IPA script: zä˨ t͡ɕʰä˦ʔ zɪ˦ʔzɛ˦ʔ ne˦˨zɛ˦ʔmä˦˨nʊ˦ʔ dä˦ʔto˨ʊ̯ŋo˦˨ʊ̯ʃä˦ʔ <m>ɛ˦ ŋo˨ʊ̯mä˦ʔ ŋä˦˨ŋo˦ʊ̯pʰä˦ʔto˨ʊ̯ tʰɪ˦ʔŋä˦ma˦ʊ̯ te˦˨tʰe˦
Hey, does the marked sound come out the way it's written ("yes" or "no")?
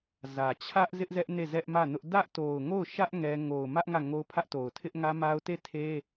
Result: no